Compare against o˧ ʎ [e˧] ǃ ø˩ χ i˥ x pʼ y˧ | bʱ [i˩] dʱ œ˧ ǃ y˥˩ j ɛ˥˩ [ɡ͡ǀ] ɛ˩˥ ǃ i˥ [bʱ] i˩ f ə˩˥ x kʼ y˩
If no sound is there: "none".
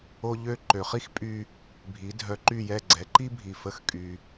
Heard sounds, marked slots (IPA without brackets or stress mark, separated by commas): ø˧, i˩˥, ɡ͡ǀ, bʱ